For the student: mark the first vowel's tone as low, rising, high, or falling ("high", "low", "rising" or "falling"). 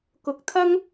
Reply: low